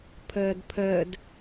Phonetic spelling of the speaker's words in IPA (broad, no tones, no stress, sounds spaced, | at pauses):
pʰ əː d pʰ əː d